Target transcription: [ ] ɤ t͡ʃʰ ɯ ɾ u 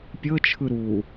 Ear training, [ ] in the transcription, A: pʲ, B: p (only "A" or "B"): A